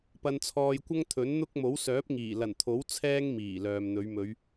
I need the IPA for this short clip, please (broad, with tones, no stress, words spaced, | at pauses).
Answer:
pɐ˧nt͡sʰɔː˧jkʷɐ˥ŋ t̪ʰɵ˨˥n n̪ʊ˥k̚ mo˨˥wsœː˨˥p̚ŋiː˨˩ lɐ˨˩nt̪ʰo˨˥w t͡sʰɛː˧ŋ miː˨˩lœː˨mn̪ɵ˨˧ɥ mɵ˨˧ɥ